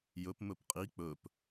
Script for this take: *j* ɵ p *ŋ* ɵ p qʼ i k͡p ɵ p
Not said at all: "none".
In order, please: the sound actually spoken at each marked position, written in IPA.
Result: j, m

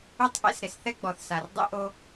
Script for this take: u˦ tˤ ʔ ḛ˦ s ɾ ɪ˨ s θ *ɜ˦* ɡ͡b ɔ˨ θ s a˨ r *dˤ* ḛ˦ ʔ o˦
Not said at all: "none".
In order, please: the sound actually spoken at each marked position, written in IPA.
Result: ɛ˦, dˤ

